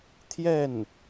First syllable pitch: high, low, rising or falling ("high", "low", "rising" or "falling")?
falling